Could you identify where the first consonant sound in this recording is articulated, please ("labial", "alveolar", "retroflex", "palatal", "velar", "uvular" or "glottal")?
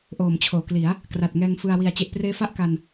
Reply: glottal